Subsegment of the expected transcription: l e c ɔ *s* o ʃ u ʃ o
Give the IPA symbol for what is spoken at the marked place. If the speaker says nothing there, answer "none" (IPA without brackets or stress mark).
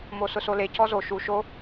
z